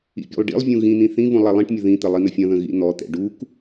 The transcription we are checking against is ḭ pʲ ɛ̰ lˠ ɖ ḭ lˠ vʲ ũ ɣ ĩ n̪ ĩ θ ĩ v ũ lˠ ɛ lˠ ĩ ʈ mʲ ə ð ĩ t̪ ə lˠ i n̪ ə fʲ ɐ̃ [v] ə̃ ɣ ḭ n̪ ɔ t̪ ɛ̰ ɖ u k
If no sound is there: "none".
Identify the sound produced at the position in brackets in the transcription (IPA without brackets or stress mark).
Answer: ð